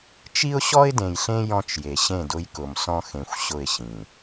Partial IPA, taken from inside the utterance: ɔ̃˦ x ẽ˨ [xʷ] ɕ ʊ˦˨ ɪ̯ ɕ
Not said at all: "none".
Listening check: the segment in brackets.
xʷ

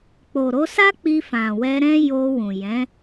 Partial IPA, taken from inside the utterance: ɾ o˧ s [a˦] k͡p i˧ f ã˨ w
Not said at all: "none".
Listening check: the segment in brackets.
a˦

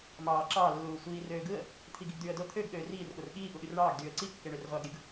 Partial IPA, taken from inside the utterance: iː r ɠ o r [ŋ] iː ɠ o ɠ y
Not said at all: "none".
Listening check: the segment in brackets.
ɠ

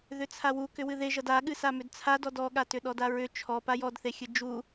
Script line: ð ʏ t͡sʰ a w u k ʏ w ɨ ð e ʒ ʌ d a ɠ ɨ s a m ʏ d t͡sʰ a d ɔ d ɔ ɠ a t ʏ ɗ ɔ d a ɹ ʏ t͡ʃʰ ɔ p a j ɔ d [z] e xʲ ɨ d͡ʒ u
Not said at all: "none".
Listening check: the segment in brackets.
θ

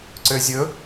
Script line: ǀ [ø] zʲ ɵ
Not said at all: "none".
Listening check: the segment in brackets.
ø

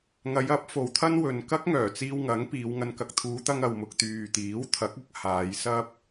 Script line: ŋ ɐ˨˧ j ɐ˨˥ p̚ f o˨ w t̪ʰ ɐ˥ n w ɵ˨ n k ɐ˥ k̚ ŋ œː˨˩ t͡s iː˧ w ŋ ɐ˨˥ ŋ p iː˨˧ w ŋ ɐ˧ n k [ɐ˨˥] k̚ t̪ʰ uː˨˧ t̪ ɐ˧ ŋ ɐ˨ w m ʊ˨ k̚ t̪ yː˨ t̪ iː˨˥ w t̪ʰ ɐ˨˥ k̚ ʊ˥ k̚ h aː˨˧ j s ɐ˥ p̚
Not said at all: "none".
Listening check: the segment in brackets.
ɐ˧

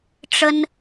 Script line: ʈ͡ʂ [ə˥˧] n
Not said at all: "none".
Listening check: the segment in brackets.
ə˥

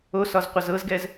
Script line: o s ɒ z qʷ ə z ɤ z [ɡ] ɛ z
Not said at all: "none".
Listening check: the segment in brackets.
ɡ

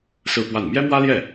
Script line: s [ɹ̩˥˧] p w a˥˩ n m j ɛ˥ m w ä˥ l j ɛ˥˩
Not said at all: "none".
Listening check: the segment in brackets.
ɹ̩˥˧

